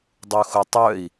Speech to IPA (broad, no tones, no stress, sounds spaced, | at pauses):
dˤ u x ʊ tˤ œ i̯